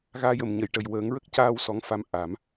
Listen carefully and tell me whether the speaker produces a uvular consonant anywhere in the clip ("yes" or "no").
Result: no